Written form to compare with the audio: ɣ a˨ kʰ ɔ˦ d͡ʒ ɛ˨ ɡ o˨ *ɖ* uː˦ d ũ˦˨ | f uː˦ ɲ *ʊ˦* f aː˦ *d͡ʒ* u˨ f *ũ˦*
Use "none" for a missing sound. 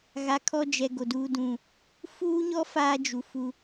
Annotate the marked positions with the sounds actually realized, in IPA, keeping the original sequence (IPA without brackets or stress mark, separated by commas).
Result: d, ɔ˦, d͡ʒ, u˦